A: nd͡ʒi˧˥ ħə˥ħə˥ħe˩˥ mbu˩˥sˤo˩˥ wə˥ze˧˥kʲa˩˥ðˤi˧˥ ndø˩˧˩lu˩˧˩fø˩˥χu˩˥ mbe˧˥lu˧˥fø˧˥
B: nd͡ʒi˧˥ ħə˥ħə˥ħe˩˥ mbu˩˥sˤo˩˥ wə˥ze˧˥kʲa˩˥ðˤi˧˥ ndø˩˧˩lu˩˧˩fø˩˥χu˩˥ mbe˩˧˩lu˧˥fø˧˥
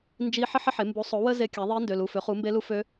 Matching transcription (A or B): A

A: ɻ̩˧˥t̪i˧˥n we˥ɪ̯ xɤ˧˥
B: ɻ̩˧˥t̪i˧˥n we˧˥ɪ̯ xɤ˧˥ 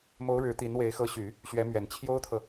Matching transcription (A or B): B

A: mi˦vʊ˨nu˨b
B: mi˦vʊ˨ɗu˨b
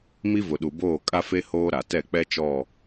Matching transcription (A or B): B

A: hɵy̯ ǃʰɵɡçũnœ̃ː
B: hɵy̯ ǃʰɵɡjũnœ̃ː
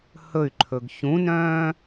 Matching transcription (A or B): A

